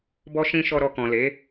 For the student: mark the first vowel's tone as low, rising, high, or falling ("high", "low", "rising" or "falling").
high